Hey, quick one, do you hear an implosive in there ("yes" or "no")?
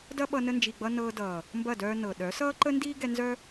yes